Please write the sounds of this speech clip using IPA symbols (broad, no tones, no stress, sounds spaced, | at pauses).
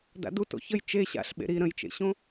d a̰ d u t o̰ ç ə j t͡ʃ e ɕ a̰ ɬ ɓ ḛ ɾ i ɾ ə̃ j t͡ʃ ḛ ɕ õ